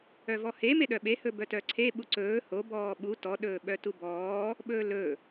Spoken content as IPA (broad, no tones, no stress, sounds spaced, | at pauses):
œ v ɔ h e m e ɗ œ ɓ e h ɵ b œ t œ ǀʰ e ɓ u ǀ ɵː h o b ɔː ɓ u t ɔ ɗ ɵː ɓ œ t u b ɔː | ɓ ɵː l ɵ